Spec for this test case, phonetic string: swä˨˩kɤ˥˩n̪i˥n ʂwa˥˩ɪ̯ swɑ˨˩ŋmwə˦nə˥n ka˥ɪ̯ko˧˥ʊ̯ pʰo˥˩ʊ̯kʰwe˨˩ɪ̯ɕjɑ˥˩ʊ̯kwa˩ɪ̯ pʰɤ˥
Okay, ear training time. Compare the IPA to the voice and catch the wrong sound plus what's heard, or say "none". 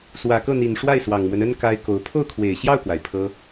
i˥ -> i˨˩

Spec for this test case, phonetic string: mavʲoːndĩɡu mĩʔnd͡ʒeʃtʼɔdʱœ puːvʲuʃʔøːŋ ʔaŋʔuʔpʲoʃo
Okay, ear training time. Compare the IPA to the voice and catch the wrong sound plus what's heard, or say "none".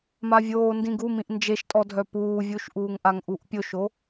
øː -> uː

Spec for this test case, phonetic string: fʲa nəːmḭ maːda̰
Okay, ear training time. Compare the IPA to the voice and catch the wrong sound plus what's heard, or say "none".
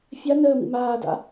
none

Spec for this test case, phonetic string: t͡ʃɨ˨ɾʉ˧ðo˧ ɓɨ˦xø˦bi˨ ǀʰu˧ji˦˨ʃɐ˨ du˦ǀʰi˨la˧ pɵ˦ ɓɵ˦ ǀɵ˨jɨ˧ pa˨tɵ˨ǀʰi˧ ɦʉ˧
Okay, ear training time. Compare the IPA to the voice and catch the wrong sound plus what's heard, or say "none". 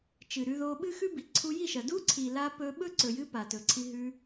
ø˦ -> ʉ˦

